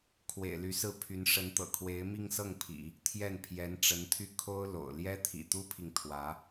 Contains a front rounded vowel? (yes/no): yes